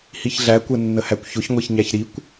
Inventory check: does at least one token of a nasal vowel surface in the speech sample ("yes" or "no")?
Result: no